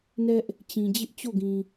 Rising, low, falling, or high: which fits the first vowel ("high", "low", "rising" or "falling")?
high